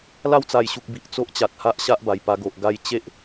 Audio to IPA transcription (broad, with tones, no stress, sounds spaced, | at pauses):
l a˥˧ w t͡s a˨˩ j ɕ u˨ k̚ b i˨ ʔ t͡s o˦ ʔ t͡ɕ a˨ t̚ h a˦ ʔ ɕ a˦ ʔ b a˨˩ j p a˧ ɡ o˨ ʔ ɡ a˧ j t͡ɕ e˦ ʔ